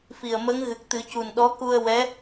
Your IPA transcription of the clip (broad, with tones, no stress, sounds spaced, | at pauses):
f i˨˩ ə̯ m ə˧˥ ŋ ɣ ɨ˨˩ k̚ t̪ ɨ˨˩˦ c u˨˩ n ɗ ɔ˧˥ k u˧ ə̯ w ɛ˧˥